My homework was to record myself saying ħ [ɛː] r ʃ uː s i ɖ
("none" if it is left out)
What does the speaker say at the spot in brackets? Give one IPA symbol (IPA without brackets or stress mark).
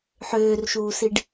øː